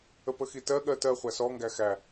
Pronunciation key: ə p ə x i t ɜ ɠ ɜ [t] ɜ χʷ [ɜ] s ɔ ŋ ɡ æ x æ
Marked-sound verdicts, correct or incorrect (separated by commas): correct, incorrect